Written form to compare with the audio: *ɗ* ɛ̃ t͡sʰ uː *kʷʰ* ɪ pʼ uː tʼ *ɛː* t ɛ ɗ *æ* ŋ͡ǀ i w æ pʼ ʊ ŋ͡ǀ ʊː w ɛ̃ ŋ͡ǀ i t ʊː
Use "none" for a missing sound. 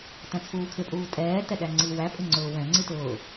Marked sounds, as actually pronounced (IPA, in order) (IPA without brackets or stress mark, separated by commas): t, kʰ, ɛː, æ